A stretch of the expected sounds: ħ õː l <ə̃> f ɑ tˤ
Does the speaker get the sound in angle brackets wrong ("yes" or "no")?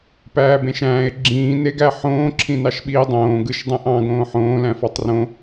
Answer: yes